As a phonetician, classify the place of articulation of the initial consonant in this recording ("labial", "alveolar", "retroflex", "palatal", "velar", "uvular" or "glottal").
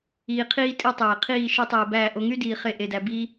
uvular